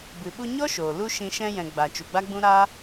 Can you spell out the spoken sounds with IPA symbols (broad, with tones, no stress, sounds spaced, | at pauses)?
b ɨ˨ ɓ u˧ ɲ ɔ˦ ʃ oː˨ l u˦ ʃ ĩ˧ ʃ ɛ̃˧ j ɛ̃˨ ɡ͡b a˨ t͡ʃ u˨ ɡ͡b a˦ ɡ͡b ũ˦ ɾ a˦